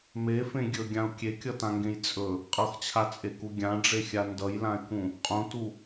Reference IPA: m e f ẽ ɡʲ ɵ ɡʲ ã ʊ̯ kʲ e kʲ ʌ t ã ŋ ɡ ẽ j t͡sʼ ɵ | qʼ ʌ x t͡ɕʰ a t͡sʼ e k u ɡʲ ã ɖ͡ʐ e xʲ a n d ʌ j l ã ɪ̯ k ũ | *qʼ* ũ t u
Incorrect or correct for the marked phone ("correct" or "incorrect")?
correct